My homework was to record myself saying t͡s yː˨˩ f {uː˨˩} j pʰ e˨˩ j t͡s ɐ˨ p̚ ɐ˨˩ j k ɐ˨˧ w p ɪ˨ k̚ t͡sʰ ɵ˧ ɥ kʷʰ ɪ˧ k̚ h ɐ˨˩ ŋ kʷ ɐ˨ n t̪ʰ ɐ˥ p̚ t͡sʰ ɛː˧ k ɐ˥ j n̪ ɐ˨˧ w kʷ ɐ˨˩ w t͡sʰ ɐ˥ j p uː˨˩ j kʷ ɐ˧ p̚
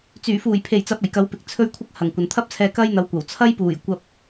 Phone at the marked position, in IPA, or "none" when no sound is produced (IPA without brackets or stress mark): uː˨˩